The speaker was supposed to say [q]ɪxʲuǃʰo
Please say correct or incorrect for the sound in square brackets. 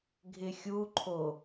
incorrect